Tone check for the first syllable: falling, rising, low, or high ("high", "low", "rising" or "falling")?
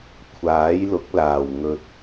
rising